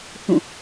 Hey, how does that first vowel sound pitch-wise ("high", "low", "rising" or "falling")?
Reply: falling